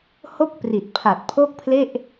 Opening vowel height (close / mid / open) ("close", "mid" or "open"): mid